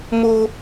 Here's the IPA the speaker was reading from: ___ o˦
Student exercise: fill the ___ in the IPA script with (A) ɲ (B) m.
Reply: B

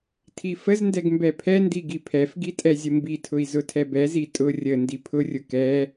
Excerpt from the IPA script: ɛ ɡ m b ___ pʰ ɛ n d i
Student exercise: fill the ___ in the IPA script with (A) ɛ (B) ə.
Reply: A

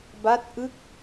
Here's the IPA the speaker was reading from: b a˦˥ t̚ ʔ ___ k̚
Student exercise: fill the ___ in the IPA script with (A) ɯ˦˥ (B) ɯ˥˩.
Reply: A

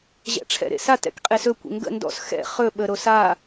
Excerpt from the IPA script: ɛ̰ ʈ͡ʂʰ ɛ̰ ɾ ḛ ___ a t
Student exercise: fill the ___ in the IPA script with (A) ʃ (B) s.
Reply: B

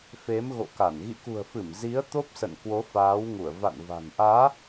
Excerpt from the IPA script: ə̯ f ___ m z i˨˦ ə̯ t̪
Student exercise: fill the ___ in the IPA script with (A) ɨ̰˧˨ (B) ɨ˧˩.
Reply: B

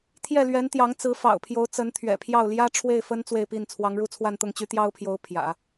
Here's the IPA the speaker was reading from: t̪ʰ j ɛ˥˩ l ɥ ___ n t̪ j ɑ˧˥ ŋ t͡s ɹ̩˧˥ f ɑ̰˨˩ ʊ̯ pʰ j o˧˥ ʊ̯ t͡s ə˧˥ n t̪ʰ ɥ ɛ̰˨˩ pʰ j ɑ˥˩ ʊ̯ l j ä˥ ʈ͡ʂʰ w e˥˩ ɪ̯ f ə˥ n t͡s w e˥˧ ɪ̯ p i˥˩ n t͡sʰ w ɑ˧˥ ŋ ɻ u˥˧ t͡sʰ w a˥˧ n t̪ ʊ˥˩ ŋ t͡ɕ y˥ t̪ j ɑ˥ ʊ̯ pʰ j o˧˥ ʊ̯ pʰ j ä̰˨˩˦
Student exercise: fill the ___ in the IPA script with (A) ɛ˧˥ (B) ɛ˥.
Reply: A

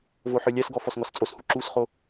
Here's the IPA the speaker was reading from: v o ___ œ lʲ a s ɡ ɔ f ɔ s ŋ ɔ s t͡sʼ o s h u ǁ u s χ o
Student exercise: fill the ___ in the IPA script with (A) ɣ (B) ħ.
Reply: B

